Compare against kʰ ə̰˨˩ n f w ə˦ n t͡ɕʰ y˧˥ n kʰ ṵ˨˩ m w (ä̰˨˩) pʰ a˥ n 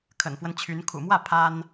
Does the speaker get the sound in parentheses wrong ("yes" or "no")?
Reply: yes